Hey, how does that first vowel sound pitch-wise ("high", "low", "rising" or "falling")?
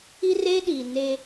high